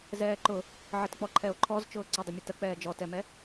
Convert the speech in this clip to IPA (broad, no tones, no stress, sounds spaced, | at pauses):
z ɛː ǃ ʊ | ʕ ə t k͡p ɔ ǃʰ ɛ o̯ ǃʰ ɔ z t͡ʃ ʊː ǀ ə dˤ ʊ mʲ ə t ə k͡p ɛː d͡ʒ ɔ t ɛ m ɛ